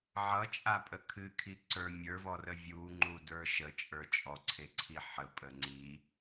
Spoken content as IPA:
ʕ ʌ t͡ʃʼ a pʼ ə kʰ ɨ kʰ i ǀ ə˞ mʲ ə˞ v ɔ r ə vʲ u ŋ͡ǃ u d ə˞ ʃ ə t͡ʃʼ ə˞ t͡ʃʼ ɔ ǀʰ e ǀʰ i ħ ə pʼ ə ŋ͡ǀ i

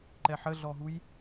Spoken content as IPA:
ǃ ɛ ħ ə ɮ ɔ ɦ u j

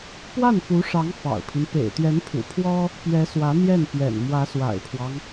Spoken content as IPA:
p w a˥˩ n f u˧˥ ʂ ɑ˧˥ ŋ f ɑ̰˨˩ ʊ̯ pʰ i˦ n p ḛ˨˩ ɪ̯ t̪ ɥ ɛ˧˥ n pʰ ṵ˨˩ pʰ w ɔ˥ | p ɥ ɛ˧˥ s w ä˧˥ n̪ j ɛ˥˩ n p j ɛ̰˨˩ n m w ä˧˥ s w a̰˨˩ ɪ̯ pʰ w ɑ˦ ŋ

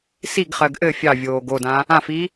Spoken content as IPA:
s i ɡ χ ɜ ɡ ʔ ɘ fʲ ɑ vʲ oː ɡ o d ã | ã f i

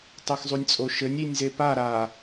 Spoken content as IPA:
tˤ ɨ x zˤ u nʲ t͡sʼ o ʃ ɘ nʲ i nʲ z e p a ɾ a

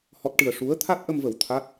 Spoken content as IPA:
h ɔ˦˥ t̚ ʈ ɨ˧ ə̯ ʂ u˧˥ ə̯ t̪ʰ a˦˥ t̚ ʔ ə˧ m v ə˨˩ w t̪ʰ a˦˥ t̚

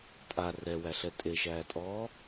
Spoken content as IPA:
tʼ a r ɛ w æ ɬ ɛ tʼ e ʃ æː tʼ ɔː

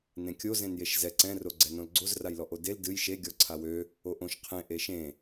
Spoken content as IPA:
n ẽ kʲ o z ẽ n j e ʃ z ɛ ǀ ɛ̃ r o ɡ͡ǀ ɛ n õ l ɡ͡ǀ o z r a j l ɔ ʔ o d e l d ɨ j ʃ e ɡʲ ɔ ǀʰ a w ø | o ʔ õ ʃ qʰ ẽ ʔ e ʃ ẽ

